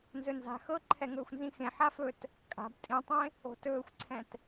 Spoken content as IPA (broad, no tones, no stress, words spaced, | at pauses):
nzɵnza̤ xɤ ǃʰɛŋɵːxʷnzĩxẽ ħafɵt | kʼa̤b tʼĩtˤẽ | o̤tɵːxʷǀʰɛ̃t